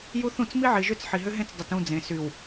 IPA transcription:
j u˦ θ ũ˦˨ t͡s m i˦ ʕ i˨ ʒ ʏ˦˨ t͡s ħ i˨ ɦ ʏ˦ ɦ ẽ˦ t͡s dˤ ʏ˨ t ũ˦˨ d͡z ẽ˨ s y˨ w

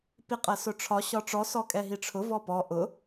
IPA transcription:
p i qʼ ɜ s ʊ ʈ͡ʂʰ ɒ ɕ ɒ ʈ͡ʂ ɔ s ɔ kʼ ɛ ɦ i ʈ͡ʂʰ ʊ v ɔ p ɔ ʔ ʊ

